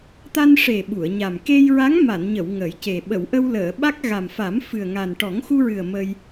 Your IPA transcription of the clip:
t̪a˧nʂe˨˩ ɓu˨˩˨ə̯ɲa˨˩m ke˧jɹa˧˥ŋ ma˨˩˨nɲə˨˩˨w ŋə˨˩˦jce˨˩ ɓə˨˩˨wʔə˧wləː˨˩˨ɓa˦˥k̚ ɣa˨˩mfa˨˩˦mfɨ˨˩ə̯ŋa˨˩n ʈɔ˨˩˦ŋxu˧ɹɨ˨˩ə̯ mə˧j

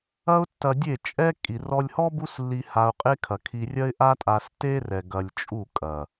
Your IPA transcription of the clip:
ɐ˦ʊ̯tːɐ˧dʲe˦˨t͡ʃʼɛ˦ kʼi˨ rɔ˧lʲhɔ˦ bu˦slːi˧ ha˧ʊ̯qʼe˦kʰɐ˨kʰi˧ rʲɐ˦ɪ̯ʔa˦tʼa˧s te˦rɛ˨ ɡɐ˧lʲt͡ʃʼu˦˨kʼɐ˨

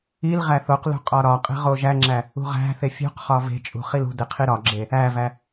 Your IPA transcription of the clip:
il ʁæθoqlṳ qʼɒɾɒqʼe̤ ʁoʒæŋ͡ǁæ | ṳʁæ̤θe fʲṳq χɒve̤t͡ʃʼṳ χilṳde qʰiɾɒɡ͡ǁe | ævæ

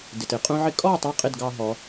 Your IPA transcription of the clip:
dɪ˨tɪ˨qʼũ˦ʕɪ˦ kʼɔ˦˨ tˤɑ˦qʼɪ˦˨dɡɑ˧ɦɔ˨˦

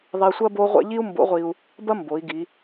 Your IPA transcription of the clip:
ðˤi˧sʷɐ˥ bo˥ʁʷɛ̰˥ ʎi˥u̯mbo̰˧˥ʁʷi˧u̯ | bɐ˥mbo˩˧i̯ ɡi˩˧

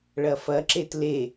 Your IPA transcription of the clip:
ɭɐfɐǁet le

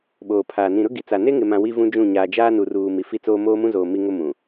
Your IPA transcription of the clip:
ɓoː˨pʰaː˨ nĩ˨ɾʊ˦ɡi˨t͡sa˨ ne˦ŋɪ˨mã˨ wi˦vũ˦d͡ʒũ˦˨ ɲaː˨d͡ʒaː˦ nu˨ruː˨ mi˨fi˦t͡soː˦ moː˦mũ˦zoː˨ mi˦ŋʊ˦ mũ˨

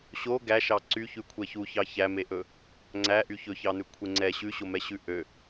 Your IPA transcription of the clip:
ɕo ɡæʃɑ ǀyçʉkʷʰɛ çuçɑ çæmeʔɵ | ŋ͡ǀæʔy çɵçɑnʉ kʷʰeŋ͡ǀɛ ɕʉɕomɛ ɕʉʔø

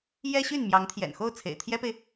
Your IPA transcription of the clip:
jɛ˥ɕy˥˩n mjɑ˧˥ŋt̪ʰjɛ̰˨˩nxo˥˩ʊ̯ t͡sʰḛ˨˩ɪ̯t̪ʰjɛ˥pe˨ɪ̯

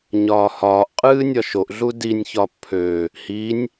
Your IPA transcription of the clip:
ɲɒːhɒːʔqʼɨː nʲɒʃoʔɮu dinʲçɒ pʰø | hinʲ

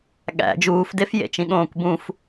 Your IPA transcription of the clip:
ɠæ̰ d͡ʒuːfdefjḛt͡ʃĩ ɠõːkʷbũf

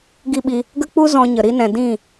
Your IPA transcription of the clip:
ɡi˦˨ɓi˧ | ɡə˦k͡pu˦ zɔ̃˧ɲə˨ ɾi˧nɛ̃˨ dĩ˦˨

